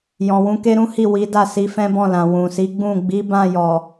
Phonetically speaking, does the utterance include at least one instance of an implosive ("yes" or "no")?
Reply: no